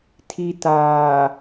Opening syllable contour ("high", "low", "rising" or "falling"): low